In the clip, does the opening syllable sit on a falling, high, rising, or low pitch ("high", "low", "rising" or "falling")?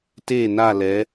falling